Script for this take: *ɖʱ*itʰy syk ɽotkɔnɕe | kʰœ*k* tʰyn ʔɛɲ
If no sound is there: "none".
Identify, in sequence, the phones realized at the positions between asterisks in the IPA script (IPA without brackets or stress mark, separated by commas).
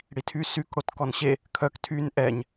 ɽ, k